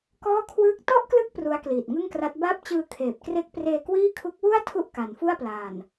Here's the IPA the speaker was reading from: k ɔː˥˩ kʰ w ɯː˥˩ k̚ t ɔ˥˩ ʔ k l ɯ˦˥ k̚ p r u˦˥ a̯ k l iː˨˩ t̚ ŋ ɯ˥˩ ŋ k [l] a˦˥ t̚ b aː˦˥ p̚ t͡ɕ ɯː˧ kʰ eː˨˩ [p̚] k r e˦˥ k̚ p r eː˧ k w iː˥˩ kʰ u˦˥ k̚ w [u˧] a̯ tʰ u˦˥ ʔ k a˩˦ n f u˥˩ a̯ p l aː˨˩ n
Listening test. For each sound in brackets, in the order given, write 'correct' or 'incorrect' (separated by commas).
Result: incorrect, correct, incorrect